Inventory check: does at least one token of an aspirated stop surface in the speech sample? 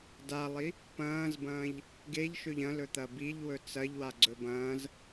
no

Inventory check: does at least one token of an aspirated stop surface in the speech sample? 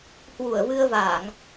no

